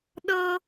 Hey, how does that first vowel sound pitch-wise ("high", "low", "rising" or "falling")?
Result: high